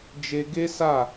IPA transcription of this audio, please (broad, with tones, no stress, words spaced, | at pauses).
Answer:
d͡ʒe˧ɡe˦sa˦˨